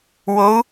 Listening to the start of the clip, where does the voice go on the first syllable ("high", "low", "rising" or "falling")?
rising